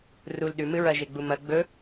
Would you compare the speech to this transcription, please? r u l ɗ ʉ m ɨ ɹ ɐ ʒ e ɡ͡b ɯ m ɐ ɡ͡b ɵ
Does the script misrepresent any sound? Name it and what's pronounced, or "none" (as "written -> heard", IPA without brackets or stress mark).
ɯ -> u